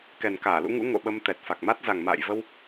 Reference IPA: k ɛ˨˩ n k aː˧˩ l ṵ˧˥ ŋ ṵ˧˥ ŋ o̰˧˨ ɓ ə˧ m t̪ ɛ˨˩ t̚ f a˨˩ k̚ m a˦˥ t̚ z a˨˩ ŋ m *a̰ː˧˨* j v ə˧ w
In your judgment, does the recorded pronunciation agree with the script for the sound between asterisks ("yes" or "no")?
yes